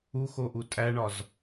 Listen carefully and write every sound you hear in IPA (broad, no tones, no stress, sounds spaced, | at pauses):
u x o ʔ u tʼ æ ɳ ɒ z